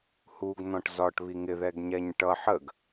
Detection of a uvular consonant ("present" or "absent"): absent